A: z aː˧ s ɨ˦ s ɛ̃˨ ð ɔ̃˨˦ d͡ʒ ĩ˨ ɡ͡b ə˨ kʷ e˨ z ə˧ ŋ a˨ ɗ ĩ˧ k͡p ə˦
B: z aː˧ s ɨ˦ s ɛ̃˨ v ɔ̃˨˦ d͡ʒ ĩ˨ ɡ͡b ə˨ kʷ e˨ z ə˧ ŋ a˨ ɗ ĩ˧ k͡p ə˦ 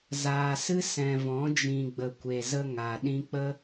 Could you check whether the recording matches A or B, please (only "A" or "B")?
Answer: B